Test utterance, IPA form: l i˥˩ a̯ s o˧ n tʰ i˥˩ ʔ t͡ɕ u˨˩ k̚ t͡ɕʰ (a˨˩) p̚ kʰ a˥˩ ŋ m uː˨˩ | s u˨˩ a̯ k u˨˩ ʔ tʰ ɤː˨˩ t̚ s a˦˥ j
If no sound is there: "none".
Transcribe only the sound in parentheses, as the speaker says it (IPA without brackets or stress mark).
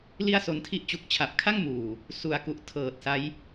a˨˩